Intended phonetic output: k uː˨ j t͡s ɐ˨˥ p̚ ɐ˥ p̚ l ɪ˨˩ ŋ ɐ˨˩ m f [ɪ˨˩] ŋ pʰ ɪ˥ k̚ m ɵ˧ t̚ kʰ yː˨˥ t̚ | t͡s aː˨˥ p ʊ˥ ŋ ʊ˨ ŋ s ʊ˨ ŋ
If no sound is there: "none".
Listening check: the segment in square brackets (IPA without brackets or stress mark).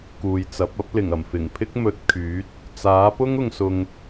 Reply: ɪ˨˩